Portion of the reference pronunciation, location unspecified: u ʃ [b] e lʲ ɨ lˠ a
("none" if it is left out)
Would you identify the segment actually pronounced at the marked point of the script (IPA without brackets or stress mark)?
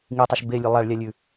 b